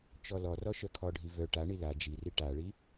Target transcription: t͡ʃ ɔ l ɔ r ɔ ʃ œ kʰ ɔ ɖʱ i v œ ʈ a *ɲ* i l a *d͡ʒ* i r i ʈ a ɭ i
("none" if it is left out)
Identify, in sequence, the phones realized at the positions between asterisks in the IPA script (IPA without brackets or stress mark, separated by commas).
ɳ, d͡ʒ